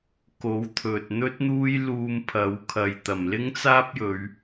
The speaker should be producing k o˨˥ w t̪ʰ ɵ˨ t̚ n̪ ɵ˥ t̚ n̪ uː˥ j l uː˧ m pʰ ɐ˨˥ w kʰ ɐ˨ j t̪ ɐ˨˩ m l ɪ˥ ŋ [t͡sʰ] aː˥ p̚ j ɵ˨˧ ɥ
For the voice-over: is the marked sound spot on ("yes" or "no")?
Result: no